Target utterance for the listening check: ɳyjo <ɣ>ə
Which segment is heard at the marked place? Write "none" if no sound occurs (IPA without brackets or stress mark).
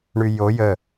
j